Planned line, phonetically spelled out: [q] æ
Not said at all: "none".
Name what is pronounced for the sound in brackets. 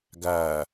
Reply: ɡ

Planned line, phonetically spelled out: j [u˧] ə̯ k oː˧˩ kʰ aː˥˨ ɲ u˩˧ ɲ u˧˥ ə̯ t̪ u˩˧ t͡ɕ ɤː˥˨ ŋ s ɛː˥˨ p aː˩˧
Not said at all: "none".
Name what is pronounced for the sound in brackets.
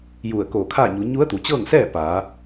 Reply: u˧˩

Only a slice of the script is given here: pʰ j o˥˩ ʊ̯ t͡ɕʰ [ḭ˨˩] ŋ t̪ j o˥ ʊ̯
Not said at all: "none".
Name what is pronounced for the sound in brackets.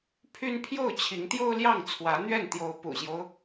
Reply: i˧˥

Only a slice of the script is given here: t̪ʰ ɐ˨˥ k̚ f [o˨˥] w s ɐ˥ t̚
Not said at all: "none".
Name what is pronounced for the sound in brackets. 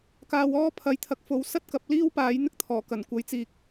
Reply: o˨˥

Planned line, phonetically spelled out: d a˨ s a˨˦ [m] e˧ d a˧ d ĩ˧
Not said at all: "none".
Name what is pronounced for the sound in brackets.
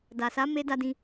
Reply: m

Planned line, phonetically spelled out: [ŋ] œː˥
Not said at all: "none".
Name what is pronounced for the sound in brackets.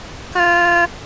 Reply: k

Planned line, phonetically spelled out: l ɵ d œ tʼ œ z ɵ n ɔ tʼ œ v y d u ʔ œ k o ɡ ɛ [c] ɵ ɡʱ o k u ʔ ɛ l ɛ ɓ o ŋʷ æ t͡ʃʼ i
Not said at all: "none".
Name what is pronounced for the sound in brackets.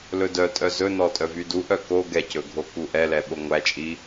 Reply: c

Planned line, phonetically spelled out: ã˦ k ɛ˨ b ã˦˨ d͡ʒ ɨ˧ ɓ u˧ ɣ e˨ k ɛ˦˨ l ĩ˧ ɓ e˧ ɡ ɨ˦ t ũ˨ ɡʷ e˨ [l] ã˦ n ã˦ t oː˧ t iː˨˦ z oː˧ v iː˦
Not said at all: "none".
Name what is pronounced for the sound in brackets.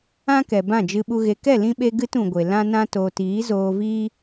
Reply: l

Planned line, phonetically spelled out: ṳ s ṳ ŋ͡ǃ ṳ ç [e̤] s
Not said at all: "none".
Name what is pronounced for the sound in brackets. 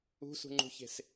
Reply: e̤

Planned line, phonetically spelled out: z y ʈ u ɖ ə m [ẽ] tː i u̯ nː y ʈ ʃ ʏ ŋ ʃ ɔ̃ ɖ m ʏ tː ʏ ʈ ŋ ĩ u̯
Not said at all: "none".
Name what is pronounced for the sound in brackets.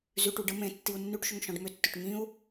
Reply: ẽ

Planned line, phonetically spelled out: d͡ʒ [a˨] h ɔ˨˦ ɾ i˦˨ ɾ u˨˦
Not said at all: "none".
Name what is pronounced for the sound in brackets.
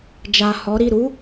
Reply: a˨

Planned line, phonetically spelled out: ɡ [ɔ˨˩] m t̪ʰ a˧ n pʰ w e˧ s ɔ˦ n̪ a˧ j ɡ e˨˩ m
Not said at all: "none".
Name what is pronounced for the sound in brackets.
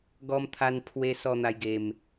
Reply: ɔ˧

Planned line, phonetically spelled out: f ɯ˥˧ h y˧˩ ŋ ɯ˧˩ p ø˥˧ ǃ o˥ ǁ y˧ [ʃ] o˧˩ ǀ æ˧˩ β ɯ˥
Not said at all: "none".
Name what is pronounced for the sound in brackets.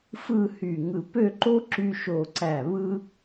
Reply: ʃ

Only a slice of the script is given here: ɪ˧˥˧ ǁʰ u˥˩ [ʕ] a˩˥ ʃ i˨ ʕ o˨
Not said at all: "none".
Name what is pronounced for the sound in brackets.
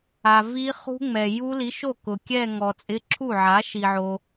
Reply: ʕ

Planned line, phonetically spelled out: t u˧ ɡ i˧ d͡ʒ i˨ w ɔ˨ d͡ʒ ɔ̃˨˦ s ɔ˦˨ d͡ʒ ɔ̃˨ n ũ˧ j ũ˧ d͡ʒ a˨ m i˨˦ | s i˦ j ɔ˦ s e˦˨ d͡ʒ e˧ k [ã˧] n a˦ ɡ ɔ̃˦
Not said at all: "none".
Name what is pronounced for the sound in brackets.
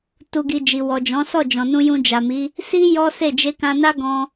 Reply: ã˧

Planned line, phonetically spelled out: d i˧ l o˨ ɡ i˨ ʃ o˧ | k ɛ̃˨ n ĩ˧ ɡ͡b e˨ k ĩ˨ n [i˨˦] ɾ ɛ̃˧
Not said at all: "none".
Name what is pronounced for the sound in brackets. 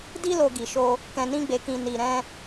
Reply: i˨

